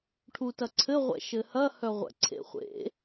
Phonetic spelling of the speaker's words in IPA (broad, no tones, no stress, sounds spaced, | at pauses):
ʈʰ u t ɐ ǀʰ ɘ ʁʷ ɛ̰ ʃ ɘ h ɐ h œ ʁʷ ɛ̰ ǀʰ ḛ χʷ ḛ